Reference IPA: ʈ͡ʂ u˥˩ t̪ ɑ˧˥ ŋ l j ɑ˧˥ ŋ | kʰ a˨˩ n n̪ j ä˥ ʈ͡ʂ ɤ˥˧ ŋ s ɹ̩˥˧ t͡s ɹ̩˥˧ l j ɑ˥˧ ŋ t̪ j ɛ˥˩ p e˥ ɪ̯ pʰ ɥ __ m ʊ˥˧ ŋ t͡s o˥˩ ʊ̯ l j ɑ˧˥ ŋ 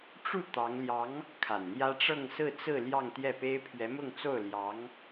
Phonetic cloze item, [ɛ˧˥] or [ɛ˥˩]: ɛ˧˥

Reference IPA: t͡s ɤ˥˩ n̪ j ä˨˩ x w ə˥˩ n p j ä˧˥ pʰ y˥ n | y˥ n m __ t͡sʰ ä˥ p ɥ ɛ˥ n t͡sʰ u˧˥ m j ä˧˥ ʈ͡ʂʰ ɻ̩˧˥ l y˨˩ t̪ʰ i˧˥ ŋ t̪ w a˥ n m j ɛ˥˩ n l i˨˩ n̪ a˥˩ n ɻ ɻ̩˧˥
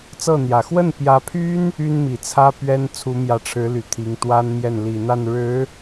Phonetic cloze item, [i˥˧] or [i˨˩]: i˨˩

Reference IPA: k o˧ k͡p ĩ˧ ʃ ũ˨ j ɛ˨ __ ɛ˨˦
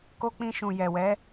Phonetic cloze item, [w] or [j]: w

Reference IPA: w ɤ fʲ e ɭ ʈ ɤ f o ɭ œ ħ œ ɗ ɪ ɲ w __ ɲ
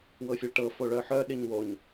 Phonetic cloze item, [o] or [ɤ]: o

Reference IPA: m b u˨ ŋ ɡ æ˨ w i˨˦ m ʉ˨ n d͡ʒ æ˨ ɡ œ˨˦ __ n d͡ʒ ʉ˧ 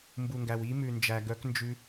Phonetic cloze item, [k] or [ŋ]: k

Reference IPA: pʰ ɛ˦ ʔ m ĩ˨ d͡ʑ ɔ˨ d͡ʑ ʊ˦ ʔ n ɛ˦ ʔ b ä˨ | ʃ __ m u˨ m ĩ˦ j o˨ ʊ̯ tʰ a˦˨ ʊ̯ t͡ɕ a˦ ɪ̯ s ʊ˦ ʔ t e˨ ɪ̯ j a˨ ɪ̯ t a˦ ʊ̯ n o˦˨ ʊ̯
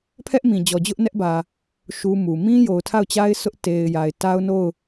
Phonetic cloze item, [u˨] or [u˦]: u˦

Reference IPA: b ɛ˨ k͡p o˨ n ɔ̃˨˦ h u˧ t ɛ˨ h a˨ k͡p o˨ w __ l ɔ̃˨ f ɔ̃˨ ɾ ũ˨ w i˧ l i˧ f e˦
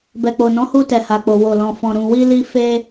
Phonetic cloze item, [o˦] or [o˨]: o˨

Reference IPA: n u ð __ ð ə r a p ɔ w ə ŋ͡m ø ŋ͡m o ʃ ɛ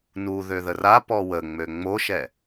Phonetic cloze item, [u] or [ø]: ø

